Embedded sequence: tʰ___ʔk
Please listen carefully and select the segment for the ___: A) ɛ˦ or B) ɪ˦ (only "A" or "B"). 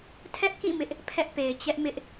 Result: A